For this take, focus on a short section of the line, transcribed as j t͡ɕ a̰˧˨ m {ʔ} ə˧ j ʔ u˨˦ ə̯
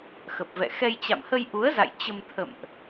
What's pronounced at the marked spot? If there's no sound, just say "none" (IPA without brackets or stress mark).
h